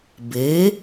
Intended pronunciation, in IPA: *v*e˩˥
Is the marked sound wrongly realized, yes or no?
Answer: yes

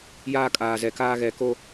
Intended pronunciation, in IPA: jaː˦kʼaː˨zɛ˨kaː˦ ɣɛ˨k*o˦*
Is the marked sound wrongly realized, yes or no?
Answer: no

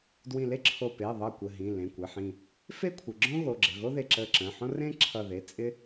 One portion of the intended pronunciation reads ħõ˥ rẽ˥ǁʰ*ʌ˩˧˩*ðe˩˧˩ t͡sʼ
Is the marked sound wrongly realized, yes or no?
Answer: yes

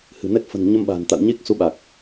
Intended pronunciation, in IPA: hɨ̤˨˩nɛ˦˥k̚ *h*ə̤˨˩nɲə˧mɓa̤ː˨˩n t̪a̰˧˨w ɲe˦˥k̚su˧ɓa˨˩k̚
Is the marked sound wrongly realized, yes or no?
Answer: yes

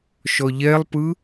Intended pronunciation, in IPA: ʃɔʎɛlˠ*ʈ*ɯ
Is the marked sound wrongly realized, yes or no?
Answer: yes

